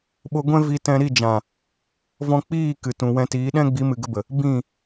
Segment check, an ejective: absent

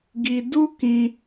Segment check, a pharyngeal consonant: absent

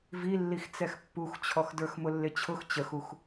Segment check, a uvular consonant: absent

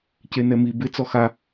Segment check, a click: absent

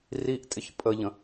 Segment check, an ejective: present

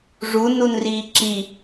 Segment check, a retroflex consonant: present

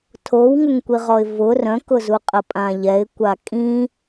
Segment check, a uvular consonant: present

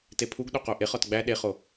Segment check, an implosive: present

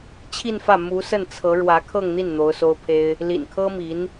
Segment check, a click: absent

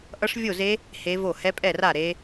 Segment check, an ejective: present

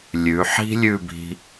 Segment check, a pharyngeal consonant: present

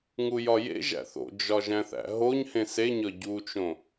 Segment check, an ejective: absent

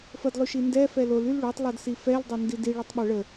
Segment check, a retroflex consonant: present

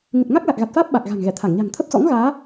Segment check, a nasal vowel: absent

